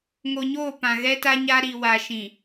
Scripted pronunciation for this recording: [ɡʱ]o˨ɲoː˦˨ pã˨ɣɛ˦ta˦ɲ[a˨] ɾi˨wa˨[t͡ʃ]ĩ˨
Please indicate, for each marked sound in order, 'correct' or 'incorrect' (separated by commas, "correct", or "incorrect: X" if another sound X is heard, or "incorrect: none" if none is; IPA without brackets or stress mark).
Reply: incorrect: ŋ, incorrect: a˦, incorrect: ʃ